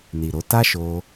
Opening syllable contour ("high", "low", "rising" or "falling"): low